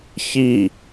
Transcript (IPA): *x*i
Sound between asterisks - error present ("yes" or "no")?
yes